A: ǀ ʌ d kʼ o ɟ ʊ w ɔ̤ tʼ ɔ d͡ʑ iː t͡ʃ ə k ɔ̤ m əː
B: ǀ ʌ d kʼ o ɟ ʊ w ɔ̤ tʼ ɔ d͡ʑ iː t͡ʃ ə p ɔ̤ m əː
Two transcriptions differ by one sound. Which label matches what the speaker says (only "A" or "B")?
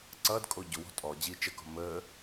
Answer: A